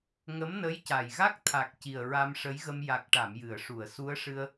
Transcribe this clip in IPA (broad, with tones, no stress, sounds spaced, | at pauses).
ŋ ə˧˥ m n ə˧˥ j c a˨˩ j ɣ a˦˥ k̚ t̪ʰ a˨˩ k̚ c i˨˩ ə̯ ɹ a˧ m ʂ ə˧˥ j ɣ ə˧ m j a˨˩ k̚ ʈ a˨˩˨ m j ɨ˨˩˨ ə̯ ʂ u˨˩˨ ə̯ s u˧˥ ə̯ ʂ ɨ˧ ə̯